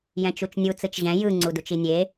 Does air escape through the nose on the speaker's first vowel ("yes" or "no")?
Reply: yes